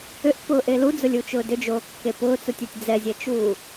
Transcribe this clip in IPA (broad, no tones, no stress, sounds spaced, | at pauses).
ʏ ʔ p ʊː ʔ e l u d͡z ʊ lʲ u t͡ʃ ʊː d ʏ d͡ʒ oː kː e p ʊː t͡s u tʲ e tʲ d͡z ɛ zʲ ɛ t͡ʃ uː